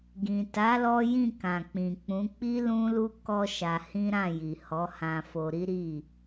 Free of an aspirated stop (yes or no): yes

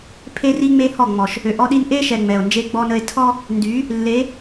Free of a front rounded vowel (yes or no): no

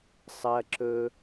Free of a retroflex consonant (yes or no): yes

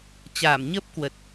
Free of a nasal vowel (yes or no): yes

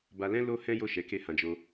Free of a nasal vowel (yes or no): no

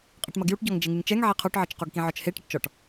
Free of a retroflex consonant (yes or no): no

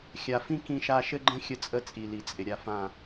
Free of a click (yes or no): no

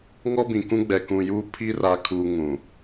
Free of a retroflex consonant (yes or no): yes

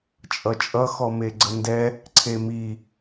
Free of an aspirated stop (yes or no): no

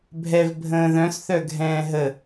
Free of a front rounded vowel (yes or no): no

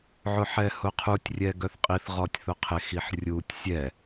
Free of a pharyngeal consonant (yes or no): no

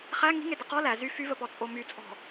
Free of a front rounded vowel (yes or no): no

